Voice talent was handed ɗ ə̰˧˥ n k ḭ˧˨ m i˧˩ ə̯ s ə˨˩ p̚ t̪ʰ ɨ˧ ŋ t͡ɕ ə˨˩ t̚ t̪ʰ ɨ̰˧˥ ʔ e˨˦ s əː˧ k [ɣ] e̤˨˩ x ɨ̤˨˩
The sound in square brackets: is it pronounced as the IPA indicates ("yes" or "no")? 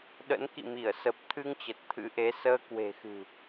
no